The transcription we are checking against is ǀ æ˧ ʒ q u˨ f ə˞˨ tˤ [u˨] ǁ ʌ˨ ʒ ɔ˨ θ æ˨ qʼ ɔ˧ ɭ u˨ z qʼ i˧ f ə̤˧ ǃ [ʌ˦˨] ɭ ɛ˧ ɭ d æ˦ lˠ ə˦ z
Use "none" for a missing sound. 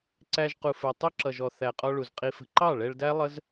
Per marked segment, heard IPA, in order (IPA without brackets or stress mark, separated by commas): u˦, ɑ˦˨